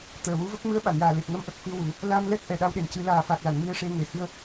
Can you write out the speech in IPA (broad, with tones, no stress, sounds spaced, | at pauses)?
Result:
t̪ əː˨˩ w u˧˥ v ə˦˥ k̚ m ɨ˧˥ ə̯ ɓ a˨˩˨ n j aː˨˩ l e˨˩ p̚ ŋ ə˧˥ m ʔ ə˨˩ k̚ f ɨ˧ w u˨˩˦ | l a˧ m l ɛ˦˥ k̚ ʔ ɛ˨˩ ɗ a˧ w ɗ e˨˩ n c ɨ˨˩˦ l aː˨˩ f a˨˩ k̚ l a˨˩˨ n m i˧ ə̯ ʂ e˧ ŋ e˨˩ h ɨ˧ ə̯